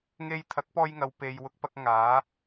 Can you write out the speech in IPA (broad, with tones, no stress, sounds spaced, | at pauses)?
ŋ e˧ j t̪ʰ ɐ˨˥ k̚ p ɔː˧ j ŋ ɐ˨ w p e˨ j w ʊ˧ k̚ p ɐ˧ k̚ ŋ aː˨˧